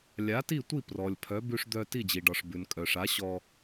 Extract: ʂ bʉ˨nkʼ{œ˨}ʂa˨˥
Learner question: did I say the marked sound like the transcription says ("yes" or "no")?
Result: yes